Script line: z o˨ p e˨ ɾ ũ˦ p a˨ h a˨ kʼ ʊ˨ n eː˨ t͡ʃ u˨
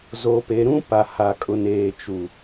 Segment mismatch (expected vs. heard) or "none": none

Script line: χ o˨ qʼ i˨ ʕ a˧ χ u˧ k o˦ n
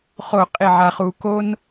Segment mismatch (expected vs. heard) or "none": none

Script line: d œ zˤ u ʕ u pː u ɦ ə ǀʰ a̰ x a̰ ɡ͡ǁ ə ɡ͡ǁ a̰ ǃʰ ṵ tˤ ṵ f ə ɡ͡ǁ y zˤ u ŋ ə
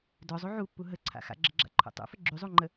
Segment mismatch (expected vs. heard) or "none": ŋ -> ŋ͡ǃ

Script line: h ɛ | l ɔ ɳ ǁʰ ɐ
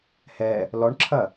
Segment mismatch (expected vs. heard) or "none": none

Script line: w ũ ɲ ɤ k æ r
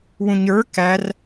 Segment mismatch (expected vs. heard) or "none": ɤ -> ə˞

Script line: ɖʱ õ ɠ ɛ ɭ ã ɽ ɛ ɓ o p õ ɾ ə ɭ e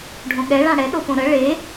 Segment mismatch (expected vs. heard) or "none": ɓ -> ɗ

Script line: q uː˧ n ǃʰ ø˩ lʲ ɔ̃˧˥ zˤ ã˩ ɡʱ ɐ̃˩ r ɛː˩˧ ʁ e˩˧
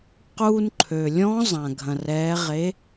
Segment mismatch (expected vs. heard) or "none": none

